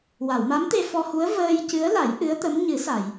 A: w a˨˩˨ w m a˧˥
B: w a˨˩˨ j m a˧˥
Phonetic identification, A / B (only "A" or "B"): A